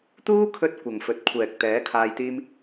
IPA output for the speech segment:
t̪ uː˥ kʰ ɵ˧ t̚ kʷ ɐ˨ ŋ f ɵ˨ t̚ kʷʰ ɛː˨ k̚ t̪ ɛː˨˥ kʰ aː˧ j t̪ iː˥ m

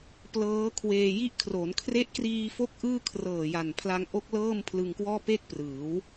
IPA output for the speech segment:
p l ɤː˦˥ kʰ w eː˧ j i˦˥ ʔ kʰ r o˩˦ n kʰ r e˦˥ ʔ k r iː˧ f o˦˥ k̚ ʔ ɯː˥˩ kʰ r ɤː˨˩ j a˨˩ n pʰ l a˧ ŋ ʔ o˦˥ k̚ l ɤː˥˩ m pʰ l ɯ˧ ŋ k w ɔː˥˩ p e˥˩ k̚ p r ɯː˩˦ w

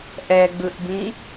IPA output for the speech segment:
ʔ ɛ ɡ͡b ɯ ʔ b ĩ

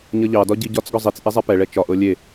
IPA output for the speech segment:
ɲ ʌ ʎ ɑ d ɒ ɟ i ɟ ɒ t͡s ɡ ɒ zˤ i t͡s ʔ e zˤ ɛ p ɛ ɭ ɛ t͡ʃ ɒ ʔ ɤ lʲ e

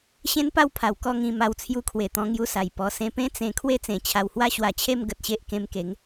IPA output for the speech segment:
ɕ ẽ˦ n p a˥˧ w pʰ a˨˩ w k ɔ˥˧ ŋ ĩ˧ m a˧ w t͡sʰ j u˧ kʰ w e˨˩ t̪ ɔ̃˧ ŋ j u˧ s a˨˩ j p ɔ˧ s ẽ˧ p ẽ˦ t͡s ẽ˧ kʰ w e˥˧ t͡s ẽ˨˩ t͡ɕʰ a˧ w h w a˥˧ ɕ w a˧ t͡ɕʰ e˥˧ m ɡ ə˨ t̚ ɕ e˦ ʔ k ẽ˧ m k e˨˦ ŋ

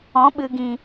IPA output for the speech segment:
ɔ̃˨˦ ɓ ɨ˨ ɡ ĩ˨

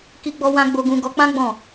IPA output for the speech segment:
k i˦ ɡ͡b ɔ˦ w ã˦ ɡ͡b o˦ ɡ ũ˧ ɡ ɔ˧ k͡p ã˦ ɡ͡b ɔ̃˦˨

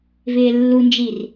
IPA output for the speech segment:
v ɪː lː u n d͡ʒ i r

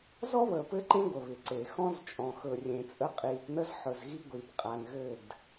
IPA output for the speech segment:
z ɔ˦ β əː˨ p ɘ˦ ǃ ẽ˦ ɡʷ ə˨ β ɪ˨ ǀ e˨ x ɔ̃˦ z t͡ʃʼ ɔ̃˨ x ɵ˨ rʲ ẽ˨ t͡sʼ ə˦ qʼ iː˨ p n ə˦ z ħ ɵ˨ z ɣ i˦ ɡʷ iː˨ p qʼ a˨ n ɣ ɘ˦˨ d

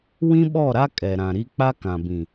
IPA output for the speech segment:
w ĩ˦ ɓ ɔ˦˨ ɾ a˦ kʼ ɛ˨ ɾ ã˨ ɾ i˦ k͡p a˦ k ã˨ b ĩ˨

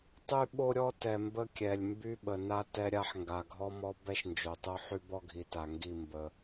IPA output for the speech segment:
tˤ y˦ ɓ o˦ ɾʲ ɔ˦ t ɛ˨ m b ə˦ kʲ ɛ˨ lʲ m b y˦ ɓ ə˨ n a˦ t ɛ˦ ɾʲ a˦ ħ ŋ ɡ a˨ ɡʱ ɔ˦ m ɔ˦ b ɛ˦ ʃ n d͡ʒ o˨ tˤ o˦ ħ y˦ b ɔ˦ ɡʱ i˨ t a˨ ŋ ɡ i˦˨ m b ə˦

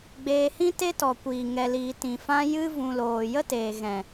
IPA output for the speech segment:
ɡ͡b eː˧ h ĩ˦ t e˦ t ɔ˨ kʷ iː˨ ŋ ɛ˨ l iː˨ t ĩ˨ f ã˧ j ɨ˧ v ũ˨ l oː˨ j ə˦ t eː˨ ɣ ɛ̃˨

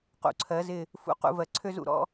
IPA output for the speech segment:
q ṵ˩˧ ǀʰ ɜ˩˧ z ɪ˧˩ | f ṵ˧ q ṵ˧ v ɜ˩˧ ǀʰ ø˥ z ṵ˥ ɾ ɔ̰˥

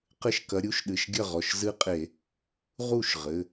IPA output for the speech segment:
q ɘ˥˩ ʃ k ɐ˨˥ ɾʲ u˨˥ ʃ ɗ ɨ˩˧˩ ʃ ɡʲ ɐ˥˩ ʁ ɔ˩˧˩ ʃ z ɨ˦ qʼ e˧˩˧ | ʁ u˥˩ ʃ ʁ ɘ˩˧˩

